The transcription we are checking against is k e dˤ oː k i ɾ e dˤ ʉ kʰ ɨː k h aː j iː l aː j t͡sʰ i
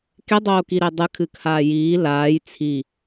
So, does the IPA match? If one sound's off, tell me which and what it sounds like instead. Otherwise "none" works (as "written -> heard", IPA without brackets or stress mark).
ʉ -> ɨ